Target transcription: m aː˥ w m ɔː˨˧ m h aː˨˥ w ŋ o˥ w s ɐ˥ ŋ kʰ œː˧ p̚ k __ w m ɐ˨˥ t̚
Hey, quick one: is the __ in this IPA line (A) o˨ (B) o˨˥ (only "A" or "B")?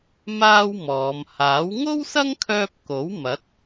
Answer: B